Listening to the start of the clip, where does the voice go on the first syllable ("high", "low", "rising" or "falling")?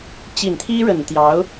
low